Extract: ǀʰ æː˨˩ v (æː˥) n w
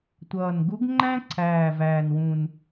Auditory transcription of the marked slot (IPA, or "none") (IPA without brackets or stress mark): æː˨˩